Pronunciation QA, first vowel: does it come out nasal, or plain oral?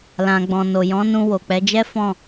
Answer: nasal